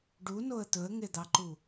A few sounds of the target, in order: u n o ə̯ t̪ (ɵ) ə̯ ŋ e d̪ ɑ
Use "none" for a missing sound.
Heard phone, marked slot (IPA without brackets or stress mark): ɵ